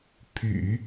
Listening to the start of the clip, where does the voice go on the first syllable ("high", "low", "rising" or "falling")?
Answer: low